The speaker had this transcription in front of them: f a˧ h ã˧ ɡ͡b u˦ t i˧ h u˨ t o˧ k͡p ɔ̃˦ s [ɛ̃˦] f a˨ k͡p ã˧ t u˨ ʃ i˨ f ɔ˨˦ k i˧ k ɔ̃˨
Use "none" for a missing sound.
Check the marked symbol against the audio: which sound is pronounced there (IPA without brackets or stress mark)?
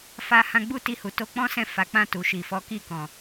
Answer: ɛ̃˦˨